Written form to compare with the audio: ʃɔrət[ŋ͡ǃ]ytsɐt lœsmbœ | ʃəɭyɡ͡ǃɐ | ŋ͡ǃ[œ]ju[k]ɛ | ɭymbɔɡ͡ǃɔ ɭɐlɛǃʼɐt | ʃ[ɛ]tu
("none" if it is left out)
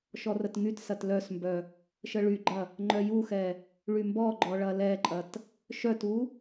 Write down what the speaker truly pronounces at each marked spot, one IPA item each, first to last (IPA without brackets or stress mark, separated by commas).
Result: ŋ, œ, x, œ